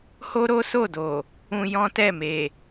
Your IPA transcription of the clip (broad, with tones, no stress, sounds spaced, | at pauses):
h o˦ ɾ o˦ s o˦˨ d o˨ | ũ˧ j ɔ̃˦ t ɛ˦˨ m e˨